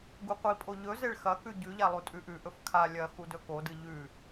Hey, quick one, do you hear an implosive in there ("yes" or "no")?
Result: no